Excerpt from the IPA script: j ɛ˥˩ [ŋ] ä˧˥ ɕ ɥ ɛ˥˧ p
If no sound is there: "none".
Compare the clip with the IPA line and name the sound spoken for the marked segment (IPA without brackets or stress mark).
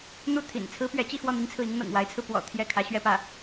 kʰ